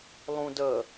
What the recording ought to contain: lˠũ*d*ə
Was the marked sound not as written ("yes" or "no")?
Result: no